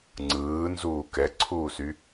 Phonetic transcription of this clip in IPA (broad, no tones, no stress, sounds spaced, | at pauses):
ŋ͡ǀ ɯː n z uː k ɛ ǀʰ uː s y